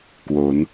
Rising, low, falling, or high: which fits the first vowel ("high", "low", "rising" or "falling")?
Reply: rising